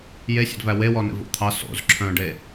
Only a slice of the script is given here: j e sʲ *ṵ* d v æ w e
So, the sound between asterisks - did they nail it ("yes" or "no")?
no